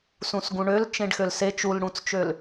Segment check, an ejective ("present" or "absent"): absent